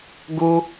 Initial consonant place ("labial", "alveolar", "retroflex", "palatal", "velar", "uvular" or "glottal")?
velar